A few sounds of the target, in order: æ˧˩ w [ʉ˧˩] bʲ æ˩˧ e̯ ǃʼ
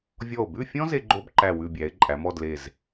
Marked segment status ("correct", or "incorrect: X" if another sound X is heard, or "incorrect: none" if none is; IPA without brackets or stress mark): correct